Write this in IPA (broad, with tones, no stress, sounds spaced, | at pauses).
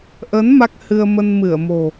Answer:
ʔ ə˨˦ n m a˦˥ k̚ h ɨ˧ ə̯ m ə˧ n m ɨ˧˩ ə̯ m o̤˨˩